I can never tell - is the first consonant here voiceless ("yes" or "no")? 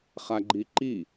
yes